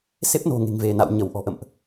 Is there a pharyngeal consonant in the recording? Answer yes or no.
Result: no